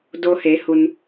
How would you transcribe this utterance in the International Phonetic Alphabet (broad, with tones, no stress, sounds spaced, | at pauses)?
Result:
d o˧ h e˩˧ h u˩ n